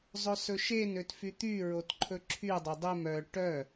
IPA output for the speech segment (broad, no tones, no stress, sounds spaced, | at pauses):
zˤ ɵ s ɵ ʃ e n ø t f y t̪ y ɹ o t ǃʰ ɵ ǁʰ y dˤ ø dˤ e m œ ʈ œ